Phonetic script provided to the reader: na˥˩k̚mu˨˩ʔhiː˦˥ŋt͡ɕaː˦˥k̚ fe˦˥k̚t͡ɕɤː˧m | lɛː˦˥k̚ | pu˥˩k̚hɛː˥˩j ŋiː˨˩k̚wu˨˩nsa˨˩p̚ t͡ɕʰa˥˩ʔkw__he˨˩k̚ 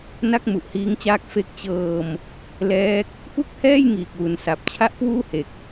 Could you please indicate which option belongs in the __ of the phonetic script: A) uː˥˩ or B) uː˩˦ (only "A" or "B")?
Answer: A